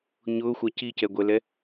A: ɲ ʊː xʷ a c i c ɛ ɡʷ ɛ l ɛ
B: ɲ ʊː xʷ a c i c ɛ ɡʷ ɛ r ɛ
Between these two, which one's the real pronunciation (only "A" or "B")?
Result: A